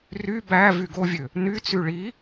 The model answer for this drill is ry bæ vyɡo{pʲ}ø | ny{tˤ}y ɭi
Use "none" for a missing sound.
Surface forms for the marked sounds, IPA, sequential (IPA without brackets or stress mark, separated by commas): vʲ, t͡s